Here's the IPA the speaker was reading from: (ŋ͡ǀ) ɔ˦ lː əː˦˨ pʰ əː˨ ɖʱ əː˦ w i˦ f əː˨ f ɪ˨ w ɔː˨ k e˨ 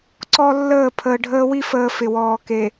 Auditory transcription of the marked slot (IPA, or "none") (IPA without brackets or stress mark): ǀ